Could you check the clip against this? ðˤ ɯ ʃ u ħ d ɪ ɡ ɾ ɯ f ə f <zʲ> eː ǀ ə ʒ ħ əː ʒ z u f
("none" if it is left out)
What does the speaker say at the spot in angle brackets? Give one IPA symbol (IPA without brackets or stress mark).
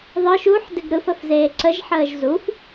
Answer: z